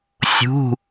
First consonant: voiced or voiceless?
voiceless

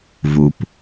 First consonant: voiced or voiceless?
voiced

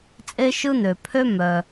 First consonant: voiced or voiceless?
voiceless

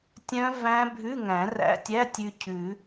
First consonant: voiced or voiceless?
voiceless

